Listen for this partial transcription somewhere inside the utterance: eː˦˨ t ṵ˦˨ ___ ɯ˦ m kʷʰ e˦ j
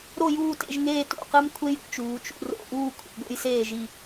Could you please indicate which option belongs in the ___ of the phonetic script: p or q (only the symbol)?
q